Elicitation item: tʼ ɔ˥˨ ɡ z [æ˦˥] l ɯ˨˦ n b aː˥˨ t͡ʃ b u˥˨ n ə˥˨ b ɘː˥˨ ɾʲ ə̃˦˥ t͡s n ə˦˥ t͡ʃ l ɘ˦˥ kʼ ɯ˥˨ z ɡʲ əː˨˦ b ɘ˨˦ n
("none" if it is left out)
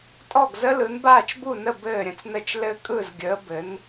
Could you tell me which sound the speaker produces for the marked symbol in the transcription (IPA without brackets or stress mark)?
ə˦˥